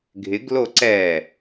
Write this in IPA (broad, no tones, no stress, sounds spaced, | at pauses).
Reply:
ɡʱ ɪ ɡ l o ǀ ɛ